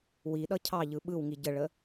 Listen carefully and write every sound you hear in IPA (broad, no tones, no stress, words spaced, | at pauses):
wiɗʌ cʰɑʎɯ ɓɯwŋi ɟəɭə